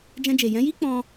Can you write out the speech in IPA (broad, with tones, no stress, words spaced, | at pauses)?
d͡ʒɛ̃˧d͡ʒe˨ jɛ̃˨˦ji˦k͡pɔ̃˧